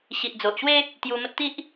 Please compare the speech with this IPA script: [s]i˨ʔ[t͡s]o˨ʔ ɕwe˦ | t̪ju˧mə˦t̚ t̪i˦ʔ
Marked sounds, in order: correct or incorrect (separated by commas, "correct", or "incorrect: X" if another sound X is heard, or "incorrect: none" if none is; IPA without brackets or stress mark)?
incorrect: ɕ, incorrect: d͡z